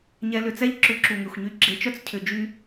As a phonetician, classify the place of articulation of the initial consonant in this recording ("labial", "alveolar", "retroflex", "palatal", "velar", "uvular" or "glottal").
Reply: palatal